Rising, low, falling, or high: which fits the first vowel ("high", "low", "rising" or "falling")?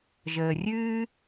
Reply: low